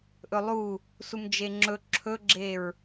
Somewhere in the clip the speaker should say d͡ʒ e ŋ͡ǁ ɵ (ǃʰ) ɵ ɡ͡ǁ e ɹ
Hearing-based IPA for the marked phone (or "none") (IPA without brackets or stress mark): ǁʰ